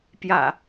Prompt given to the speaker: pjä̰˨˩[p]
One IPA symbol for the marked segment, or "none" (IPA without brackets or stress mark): none